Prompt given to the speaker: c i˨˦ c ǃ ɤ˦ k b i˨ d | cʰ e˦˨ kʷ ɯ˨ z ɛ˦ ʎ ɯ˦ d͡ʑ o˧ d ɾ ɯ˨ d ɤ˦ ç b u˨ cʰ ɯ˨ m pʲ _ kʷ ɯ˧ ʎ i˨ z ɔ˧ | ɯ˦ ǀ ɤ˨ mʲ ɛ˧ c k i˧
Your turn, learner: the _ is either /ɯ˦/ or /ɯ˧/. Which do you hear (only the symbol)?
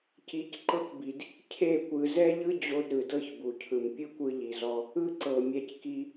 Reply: ɯ˦